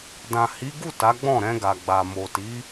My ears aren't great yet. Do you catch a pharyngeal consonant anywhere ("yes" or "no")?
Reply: no